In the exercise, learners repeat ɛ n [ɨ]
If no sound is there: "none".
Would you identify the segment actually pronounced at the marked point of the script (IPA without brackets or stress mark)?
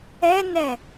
ɛ